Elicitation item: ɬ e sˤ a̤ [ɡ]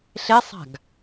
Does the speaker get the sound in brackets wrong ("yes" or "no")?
no